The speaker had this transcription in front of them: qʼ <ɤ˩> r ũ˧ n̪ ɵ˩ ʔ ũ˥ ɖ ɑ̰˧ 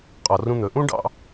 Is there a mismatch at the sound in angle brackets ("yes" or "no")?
yes